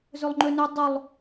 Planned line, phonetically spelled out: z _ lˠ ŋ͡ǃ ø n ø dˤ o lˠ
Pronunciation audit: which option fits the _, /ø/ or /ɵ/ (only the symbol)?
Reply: ø